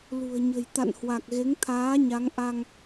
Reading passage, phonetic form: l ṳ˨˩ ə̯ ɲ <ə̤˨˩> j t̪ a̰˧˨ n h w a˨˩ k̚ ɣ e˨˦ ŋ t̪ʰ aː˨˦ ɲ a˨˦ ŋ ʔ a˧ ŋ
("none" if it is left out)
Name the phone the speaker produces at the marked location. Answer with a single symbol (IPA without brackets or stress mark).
ə̤˨˩